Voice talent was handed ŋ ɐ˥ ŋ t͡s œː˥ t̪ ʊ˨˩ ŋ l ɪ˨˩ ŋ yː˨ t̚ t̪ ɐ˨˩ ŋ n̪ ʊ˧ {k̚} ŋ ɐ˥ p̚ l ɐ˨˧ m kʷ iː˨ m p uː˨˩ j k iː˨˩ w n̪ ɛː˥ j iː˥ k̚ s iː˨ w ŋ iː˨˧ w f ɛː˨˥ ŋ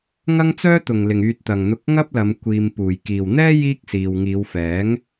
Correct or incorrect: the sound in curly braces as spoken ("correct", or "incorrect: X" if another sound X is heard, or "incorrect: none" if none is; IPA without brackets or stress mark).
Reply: correct